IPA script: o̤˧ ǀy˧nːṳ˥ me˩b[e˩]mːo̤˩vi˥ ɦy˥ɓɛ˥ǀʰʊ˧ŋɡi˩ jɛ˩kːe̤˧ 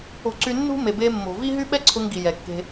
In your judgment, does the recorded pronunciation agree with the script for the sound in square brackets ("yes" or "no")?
no